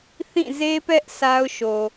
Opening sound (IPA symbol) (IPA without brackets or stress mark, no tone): θ